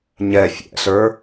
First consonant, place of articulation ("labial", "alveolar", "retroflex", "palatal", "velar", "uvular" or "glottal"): palatal